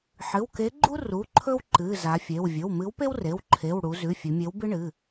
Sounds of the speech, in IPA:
ħ ɨ˩˧˩ w k e˨˥ ɡ͡ǃ u˥ r u˩˧˩ ǃʰ ɵ˥ w ǃ ɨ˩˧˩ z a˩˧ fʲ e˩˧˩ w vʲ ɵ˩˧˩ w m ɨ˨˥ w p e˥ w r e˩˧˩ w ǃʰ e˩˧˩ w ɽ u˩˧ z ʉ˩˧˩ fʲ ʉ˩˧ mʲ e˨˥ w b ɨ˥ ɳ ɨ˩˧˩

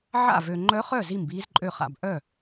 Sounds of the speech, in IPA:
ʕ a̰˥˩ v ø˨ ŋ͡ǃ œ˧˥ χ œ˥˩ z i˥˩ m b iː˧˥ z ǃʼ ø˥˩ χ a̰˥˩ b ʔ œ˥˩

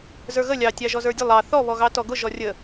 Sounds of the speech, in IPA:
z ə˞ ɣ ə lʲ ɑ tʲ ɑ ʒ ɔ z ə˞ dʲ ə lˠ ɑ θ ɔ β ɔ ɣ ɑ t ɔ ɡ ʊ ʒ ɔ rʲ ə

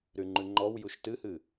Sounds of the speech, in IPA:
ɾ y ŋ͡ǃ ʉ ŋ͡ǃ ɔ w j u ʃ t ɨ h ɨ

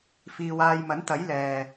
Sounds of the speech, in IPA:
f iː˧ w aː˧ j m ɐ˨˥ n t̪ ɐ˨˥ j l ɛː˨

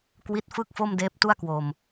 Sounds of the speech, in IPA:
k w i˦˥ t̚ f ɯ˥˩ k̚ f o˥˩ m d eː˦˥ p̚ t u˥˩ a̯ k w o˧ m

